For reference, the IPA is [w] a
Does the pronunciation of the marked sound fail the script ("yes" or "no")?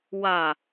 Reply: no